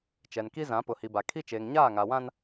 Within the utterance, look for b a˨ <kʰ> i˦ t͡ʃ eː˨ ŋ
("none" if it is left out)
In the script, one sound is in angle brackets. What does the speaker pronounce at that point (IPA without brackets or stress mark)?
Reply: kʰ